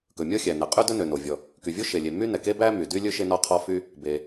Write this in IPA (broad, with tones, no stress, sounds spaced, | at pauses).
k ɵ˩ mʲ ɔ˥ xʲ æ˩ n ɛ˩ qʼ y˥ d ɵ˥ n ø˩ n o˩ vʲ ɔ˩ | k y˩ vʲ o˥ ʃ e˩ lʲ e˩ m y˥ n ɛ˩ k e˥ b æ˥ m y˩ d y˥ lʲ ɵ˥ ʃ e˥ n ɔ˥ qʰ ɔ˥ f y˥ | b e˩